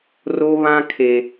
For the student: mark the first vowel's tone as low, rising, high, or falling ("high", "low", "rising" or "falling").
high